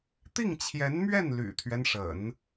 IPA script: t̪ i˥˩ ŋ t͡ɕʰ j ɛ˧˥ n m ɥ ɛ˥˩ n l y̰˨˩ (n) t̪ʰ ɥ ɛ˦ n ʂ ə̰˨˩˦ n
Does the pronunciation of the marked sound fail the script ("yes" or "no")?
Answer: yes